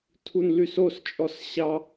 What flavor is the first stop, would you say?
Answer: aspirated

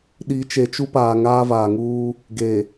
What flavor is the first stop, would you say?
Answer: implosive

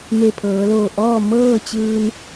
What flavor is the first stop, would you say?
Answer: aspirated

